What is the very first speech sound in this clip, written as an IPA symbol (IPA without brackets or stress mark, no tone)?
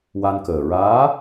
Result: w